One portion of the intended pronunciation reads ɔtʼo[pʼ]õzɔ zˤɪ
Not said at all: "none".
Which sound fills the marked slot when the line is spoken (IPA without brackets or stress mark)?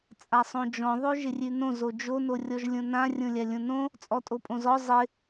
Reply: pʼ